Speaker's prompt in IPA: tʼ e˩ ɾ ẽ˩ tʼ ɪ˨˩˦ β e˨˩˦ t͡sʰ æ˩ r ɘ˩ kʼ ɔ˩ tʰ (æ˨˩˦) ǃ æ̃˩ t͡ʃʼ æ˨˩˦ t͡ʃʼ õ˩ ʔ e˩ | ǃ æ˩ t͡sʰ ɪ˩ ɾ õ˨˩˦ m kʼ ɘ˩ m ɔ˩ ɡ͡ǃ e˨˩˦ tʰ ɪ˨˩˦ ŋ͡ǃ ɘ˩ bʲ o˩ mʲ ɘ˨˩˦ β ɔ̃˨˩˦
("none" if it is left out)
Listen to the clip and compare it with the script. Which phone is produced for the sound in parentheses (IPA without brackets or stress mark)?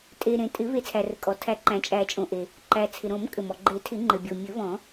æ˨˩˦